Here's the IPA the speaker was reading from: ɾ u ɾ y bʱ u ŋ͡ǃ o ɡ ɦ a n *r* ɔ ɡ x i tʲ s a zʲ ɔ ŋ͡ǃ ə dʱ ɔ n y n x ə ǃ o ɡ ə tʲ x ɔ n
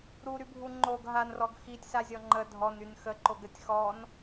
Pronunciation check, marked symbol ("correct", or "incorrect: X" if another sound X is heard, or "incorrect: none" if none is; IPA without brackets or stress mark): correct